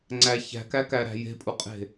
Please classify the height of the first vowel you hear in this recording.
low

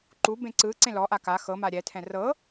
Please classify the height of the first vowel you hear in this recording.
high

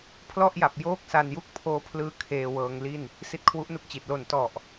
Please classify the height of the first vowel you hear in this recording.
mid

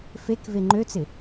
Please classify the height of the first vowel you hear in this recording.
mid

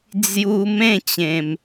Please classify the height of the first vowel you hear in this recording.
high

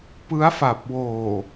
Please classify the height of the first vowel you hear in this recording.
high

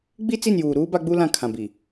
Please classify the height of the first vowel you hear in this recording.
high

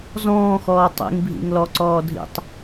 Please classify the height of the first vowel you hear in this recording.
mid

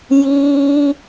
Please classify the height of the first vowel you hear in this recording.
high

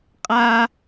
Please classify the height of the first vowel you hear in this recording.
low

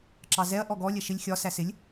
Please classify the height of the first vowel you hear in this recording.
low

